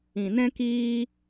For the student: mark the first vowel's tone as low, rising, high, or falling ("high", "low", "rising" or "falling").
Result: low